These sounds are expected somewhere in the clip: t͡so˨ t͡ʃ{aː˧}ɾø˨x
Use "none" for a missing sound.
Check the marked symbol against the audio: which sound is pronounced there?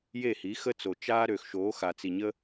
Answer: aː˦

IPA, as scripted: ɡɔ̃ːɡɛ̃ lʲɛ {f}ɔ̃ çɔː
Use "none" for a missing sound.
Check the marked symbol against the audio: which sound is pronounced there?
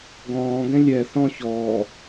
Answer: θ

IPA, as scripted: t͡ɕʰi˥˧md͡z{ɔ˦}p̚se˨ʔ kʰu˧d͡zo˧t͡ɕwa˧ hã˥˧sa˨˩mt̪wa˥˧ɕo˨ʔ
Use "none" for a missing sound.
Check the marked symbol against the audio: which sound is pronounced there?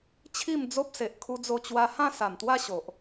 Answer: o˦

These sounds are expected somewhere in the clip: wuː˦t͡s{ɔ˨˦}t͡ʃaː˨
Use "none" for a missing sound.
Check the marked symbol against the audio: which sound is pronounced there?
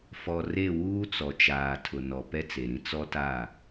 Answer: ɔ˨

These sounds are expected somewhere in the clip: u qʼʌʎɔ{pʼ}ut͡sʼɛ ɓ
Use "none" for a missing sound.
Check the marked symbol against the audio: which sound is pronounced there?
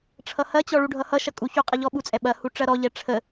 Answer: ɓ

